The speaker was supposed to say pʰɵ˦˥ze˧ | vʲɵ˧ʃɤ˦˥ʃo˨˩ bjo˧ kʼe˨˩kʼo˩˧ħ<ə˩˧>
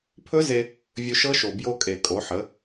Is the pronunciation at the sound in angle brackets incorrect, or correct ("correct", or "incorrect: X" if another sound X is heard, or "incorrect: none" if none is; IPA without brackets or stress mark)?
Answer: correct